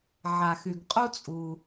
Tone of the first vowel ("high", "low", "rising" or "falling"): low